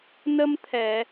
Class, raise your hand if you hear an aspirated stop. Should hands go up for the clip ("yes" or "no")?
yes